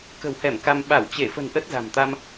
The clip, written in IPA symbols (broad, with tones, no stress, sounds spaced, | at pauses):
k ə̤˨˩ w h ɛ˧˩ m k a˧ m ɓ a˧˩ w t͡ɕ e˧˩ f ə̤˨˩ n ʔ ə˦˥ t̚ z a̤˨˩ m t̪ a˧ m